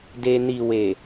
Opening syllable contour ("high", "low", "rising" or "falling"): low